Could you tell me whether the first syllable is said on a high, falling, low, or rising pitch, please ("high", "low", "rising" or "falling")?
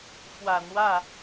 low